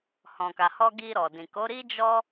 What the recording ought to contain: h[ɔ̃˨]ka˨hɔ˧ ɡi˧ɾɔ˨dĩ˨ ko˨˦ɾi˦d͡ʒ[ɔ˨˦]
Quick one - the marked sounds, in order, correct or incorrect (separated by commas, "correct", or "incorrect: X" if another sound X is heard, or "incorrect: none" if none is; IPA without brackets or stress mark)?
correct, incorrect: ɔ˦